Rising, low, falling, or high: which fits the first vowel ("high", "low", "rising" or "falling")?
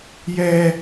high